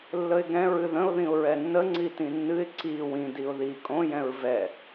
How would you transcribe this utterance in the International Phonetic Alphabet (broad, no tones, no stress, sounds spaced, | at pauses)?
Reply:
lː ə ɪ̯ ɡ ɛ̃ ɹ ɨ ð ə̃ ʊ̯ ð ĩ ʊ̯ ɹ ɛ nː ə ŋ͡ǀ i t ĩ nː ɨ ɪ̯ ǀ i w ĩ d i ʊ̯ ð i kʼ õ j ɛ̃ ɹ v ɛ